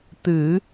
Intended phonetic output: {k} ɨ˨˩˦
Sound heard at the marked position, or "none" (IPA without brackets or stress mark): t̪